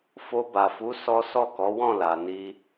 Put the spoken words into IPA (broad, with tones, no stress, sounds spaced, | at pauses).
f o˧ b a˨ f u˨˦ s ɔ˦ s ɔ˦˨ k ɔ˨˦ w ɔ̃˦˨ l a˨ n i˧